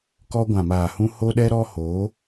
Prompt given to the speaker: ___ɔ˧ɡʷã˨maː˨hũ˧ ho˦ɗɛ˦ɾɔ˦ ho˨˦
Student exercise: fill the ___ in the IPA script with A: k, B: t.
A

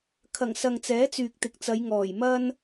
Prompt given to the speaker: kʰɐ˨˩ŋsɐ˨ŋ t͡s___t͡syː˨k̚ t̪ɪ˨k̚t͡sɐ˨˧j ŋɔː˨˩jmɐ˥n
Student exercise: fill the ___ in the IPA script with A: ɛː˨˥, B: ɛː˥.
A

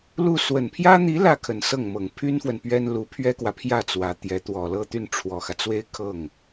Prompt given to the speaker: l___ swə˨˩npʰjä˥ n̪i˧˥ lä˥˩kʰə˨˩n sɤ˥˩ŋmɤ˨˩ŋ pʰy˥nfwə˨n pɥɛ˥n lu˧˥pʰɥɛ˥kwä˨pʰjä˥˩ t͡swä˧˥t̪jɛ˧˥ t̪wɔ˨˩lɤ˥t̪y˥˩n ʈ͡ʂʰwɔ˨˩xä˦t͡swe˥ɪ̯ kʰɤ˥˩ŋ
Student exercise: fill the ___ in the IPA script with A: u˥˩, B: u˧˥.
A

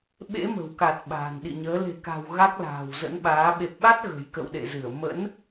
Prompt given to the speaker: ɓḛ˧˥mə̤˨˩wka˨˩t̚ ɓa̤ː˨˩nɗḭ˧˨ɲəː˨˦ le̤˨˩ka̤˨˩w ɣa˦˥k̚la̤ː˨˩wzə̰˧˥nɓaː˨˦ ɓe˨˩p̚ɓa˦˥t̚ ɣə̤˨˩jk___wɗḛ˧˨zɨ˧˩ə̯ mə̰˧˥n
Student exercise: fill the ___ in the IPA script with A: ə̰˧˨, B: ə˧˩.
A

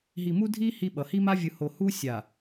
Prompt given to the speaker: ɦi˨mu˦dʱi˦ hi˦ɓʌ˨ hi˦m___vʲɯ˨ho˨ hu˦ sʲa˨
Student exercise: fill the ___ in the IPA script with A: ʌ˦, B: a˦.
B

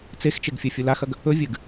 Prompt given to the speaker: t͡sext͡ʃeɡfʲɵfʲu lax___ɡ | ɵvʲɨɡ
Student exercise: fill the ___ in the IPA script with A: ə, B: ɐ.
B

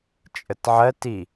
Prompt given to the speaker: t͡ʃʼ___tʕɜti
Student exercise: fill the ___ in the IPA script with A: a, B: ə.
B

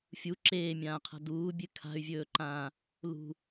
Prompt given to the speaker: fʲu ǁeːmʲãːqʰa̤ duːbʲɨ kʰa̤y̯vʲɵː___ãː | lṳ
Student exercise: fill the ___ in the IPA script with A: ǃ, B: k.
A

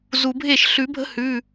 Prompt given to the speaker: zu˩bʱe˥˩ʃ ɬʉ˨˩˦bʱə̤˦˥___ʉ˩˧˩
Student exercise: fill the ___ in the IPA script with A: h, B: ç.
A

